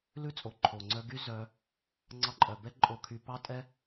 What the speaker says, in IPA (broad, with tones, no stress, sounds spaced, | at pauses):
l ʉ˦ t͡sʼ o˨ ǃʰ o˨ ŋ͡ǀ œ˦ ɡ y˦ z œ˧ | ŋ͡ǀ ɑ˧ ǃʼ œ˨ b ɛ˦ ǃʼ o˧ kʰ y˧ p ɑ˦ tʼ ɛ˦